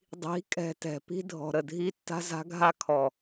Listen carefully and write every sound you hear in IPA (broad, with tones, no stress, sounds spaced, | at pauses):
dˤ i̤˨˦ kʼ ɛ̤˧ t ɛ̤˨ p i̤˦ dʱ ɔ̤˨ ɾ ə˨ dʱ i˧ tː a̤˦ z a̤˦ ɡʱ a˦ kʰ ɔ˨